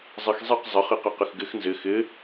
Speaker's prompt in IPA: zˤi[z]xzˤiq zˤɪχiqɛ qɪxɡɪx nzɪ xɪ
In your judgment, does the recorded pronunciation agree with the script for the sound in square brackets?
no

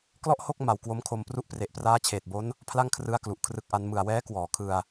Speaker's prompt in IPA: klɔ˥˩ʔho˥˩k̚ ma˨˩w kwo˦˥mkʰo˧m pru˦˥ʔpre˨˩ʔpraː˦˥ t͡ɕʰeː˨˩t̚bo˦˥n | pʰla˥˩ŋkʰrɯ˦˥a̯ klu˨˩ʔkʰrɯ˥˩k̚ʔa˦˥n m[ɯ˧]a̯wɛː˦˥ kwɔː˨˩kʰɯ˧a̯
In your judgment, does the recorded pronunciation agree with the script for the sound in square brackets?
no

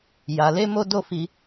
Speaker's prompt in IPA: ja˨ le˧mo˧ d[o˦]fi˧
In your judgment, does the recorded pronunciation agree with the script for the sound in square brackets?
yes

